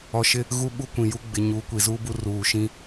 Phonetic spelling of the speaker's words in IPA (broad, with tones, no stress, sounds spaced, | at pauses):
ɔ˨ ʃ ɪ˦ | ɣ u˦ ɓ u˦ kʷ ĩ˨ j u˦ ɡ͡b ɪ˨ ɲ uː˨˦ kʷ i˨ z uː˦ b u˦ r uː˨ ʃ ĩ˦